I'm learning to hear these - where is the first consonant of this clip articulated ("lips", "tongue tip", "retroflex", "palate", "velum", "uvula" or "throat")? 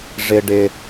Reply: retroflex